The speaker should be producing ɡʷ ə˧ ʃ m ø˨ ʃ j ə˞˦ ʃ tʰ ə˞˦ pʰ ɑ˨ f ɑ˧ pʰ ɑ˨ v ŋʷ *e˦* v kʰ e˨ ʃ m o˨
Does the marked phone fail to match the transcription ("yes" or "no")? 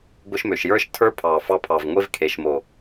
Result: no